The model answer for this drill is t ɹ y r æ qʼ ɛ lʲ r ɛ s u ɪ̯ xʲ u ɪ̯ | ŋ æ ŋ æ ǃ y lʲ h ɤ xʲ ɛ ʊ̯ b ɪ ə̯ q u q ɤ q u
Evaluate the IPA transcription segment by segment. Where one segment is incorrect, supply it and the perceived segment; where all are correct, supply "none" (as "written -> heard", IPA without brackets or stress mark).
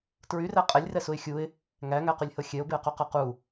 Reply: ǃ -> q